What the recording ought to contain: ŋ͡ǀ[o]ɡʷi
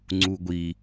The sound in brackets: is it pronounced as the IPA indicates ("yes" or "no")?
no